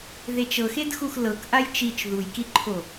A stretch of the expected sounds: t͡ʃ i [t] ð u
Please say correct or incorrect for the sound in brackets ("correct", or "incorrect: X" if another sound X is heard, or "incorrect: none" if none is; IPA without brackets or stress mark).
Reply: incorrect: t͡ʃ